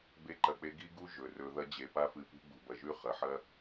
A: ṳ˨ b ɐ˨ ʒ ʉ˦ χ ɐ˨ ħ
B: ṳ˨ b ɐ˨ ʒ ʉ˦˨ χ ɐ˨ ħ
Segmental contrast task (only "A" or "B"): B